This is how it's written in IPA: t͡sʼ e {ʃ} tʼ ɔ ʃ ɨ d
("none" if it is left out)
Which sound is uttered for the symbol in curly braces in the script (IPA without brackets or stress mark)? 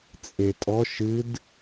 none